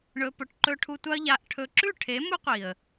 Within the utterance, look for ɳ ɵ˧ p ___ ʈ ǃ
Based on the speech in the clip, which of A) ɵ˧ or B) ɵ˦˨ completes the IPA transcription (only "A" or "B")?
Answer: A